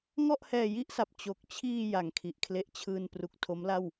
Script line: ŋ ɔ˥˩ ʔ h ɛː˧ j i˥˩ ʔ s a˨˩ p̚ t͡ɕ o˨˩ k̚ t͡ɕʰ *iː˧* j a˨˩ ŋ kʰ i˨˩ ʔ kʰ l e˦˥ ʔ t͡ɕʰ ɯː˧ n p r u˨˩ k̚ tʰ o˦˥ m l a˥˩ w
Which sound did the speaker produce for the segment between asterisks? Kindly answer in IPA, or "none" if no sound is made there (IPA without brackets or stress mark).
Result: iː˧